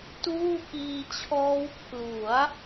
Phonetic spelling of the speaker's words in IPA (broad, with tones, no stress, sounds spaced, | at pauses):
t uː˥˩ k iː˧ t͡ɕʰ ɔː˦˥ w pʰ l u˩˦ a̯